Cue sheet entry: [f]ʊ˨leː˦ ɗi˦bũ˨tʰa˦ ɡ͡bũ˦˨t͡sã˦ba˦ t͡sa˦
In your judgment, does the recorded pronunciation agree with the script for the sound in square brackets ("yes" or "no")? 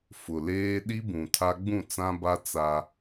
yes